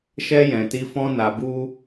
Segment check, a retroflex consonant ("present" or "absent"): absent